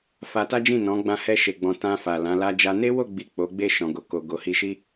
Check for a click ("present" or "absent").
absent